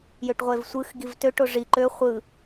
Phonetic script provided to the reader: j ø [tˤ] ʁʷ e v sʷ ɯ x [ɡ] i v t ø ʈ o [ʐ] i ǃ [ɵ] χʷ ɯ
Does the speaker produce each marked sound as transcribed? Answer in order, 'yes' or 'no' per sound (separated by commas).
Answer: no, yes, yes, no